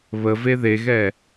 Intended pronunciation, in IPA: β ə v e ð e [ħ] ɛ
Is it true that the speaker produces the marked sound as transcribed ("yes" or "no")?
no